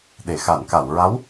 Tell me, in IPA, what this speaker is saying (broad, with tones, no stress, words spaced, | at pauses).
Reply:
ɗe˨˩˨xa˨˩˨n ka˨˩˨wɹa˧˥w